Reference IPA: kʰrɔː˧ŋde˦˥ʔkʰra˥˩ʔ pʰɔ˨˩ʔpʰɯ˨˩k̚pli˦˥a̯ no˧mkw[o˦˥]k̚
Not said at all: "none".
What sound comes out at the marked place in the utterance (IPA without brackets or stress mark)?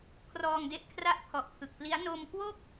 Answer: o˥˩